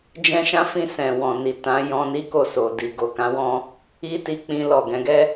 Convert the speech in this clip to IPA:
d͡ʒ ɛ̃˦ ʃ ã˦ f ĩ˦˨ s ɛ̃˨ w ɔ̃˨ n i˨ t ã˨˦ j ɔ̃˧ n i˦ k o˦˨ s o˨ d i˨ ɡ o˨ k ã˨˦ w ɔ̃˧ | i˦ t i˧ k͡p ĩ˧ l ɔ˨ ɡ ɛ̃˨˦ ɡ ɛ˦

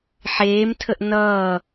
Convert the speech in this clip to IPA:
ħ eː m tʰ ə ʔ n ʌː

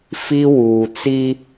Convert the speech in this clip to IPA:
f i˦ w uː˨ t͡s i˦

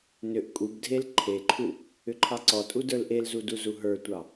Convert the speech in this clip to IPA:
n ʏ ʔ kʼ u b dʱ e l ǃʰ e ǃʰ u | ʏ ǃʰ ɑ ǀ ɔ tʼ u d ə˞ l ʔ e l z u d u z u ɦ ə˞ tʷ ɑ

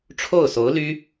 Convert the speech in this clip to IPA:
ʈ͡ʂʰ o˥˩ ʊ̯ s o˧˥ ʊ̯ l y˥

